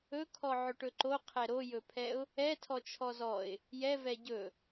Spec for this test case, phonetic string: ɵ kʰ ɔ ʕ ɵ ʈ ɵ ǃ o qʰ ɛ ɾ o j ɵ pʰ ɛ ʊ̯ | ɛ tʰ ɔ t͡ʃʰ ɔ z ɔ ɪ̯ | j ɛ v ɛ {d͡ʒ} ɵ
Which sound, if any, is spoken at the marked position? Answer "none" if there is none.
ɟ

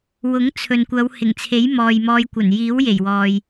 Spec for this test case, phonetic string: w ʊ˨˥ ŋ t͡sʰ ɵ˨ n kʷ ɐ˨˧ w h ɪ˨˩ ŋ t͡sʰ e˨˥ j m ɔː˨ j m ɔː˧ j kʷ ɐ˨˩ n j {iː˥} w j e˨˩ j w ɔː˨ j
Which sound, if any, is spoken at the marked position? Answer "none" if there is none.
iː˨˥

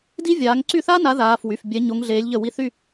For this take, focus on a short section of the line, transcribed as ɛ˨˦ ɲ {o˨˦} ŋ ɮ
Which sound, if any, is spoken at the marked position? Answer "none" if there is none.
o˨˦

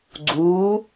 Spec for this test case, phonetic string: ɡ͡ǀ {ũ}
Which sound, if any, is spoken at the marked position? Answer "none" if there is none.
u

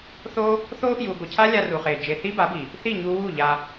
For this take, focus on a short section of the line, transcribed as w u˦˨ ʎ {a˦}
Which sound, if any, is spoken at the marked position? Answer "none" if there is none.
a˧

